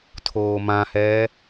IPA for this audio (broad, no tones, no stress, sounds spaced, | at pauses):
tʰ oː m ã h ɛː